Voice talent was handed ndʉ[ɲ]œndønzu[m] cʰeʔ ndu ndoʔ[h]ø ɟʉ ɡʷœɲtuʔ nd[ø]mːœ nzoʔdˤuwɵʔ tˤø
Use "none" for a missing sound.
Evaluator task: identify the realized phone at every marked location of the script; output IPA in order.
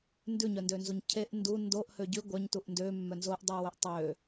ɲ, ɲ, h, ø

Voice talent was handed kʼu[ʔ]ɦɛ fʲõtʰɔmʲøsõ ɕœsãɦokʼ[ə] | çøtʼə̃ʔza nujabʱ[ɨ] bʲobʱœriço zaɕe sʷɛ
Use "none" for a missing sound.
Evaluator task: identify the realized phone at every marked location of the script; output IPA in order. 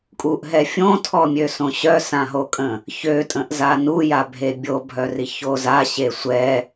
ʔ, ə̃, e

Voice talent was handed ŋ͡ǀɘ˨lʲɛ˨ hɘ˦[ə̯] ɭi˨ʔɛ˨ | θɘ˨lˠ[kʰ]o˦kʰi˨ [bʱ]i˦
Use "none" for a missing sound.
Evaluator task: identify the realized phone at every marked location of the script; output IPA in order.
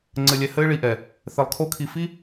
ɪ̯, kʰ, f

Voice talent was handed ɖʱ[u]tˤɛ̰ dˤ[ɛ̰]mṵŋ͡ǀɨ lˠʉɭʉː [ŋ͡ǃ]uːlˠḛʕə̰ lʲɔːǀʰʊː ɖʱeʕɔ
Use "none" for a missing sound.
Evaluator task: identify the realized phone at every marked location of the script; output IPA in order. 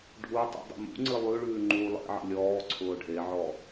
u, ə̰, ŋ͡ǃ

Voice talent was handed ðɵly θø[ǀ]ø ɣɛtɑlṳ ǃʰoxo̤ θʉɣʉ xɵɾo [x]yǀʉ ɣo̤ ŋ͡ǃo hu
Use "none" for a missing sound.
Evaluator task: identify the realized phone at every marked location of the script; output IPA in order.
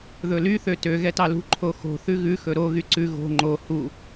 t, ɣ

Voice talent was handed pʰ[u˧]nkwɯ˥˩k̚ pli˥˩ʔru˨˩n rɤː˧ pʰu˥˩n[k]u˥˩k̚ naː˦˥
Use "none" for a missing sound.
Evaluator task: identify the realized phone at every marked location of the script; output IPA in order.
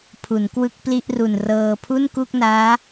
u˩˦, k

